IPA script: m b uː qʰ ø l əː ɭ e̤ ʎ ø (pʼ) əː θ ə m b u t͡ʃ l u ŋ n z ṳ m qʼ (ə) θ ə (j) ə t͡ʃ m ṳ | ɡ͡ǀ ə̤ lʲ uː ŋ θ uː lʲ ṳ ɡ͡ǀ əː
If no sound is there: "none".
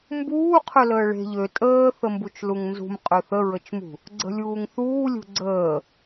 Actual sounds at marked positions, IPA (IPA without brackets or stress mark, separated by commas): tʼ, ø, ɹ